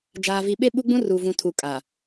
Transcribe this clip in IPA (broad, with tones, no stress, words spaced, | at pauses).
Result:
d͡ʒaː˨vi˨ɓe˦ ɓu˦ɡ͡bũ˦ru˨ vũ˨tʰu˨kʼa˨